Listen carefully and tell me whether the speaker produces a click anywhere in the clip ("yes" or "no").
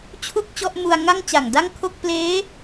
no